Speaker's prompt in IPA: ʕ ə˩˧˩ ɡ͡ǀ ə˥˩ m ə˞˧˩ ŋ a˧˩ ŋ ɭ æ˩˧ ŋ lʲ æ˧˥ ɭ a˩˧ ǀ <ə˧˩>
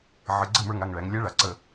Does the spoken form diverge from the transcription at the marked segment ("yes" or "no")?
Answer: no